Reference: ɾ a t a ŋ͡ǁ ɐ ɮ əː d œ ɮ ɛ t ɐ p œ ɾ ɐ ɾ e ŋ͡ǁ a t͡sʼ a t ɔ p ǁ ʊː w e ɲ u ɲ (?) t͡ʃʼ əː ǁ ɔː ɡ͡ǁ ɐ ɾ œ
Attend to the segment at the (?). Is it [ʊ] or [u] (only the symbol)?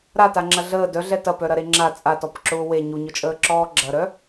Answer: ʊ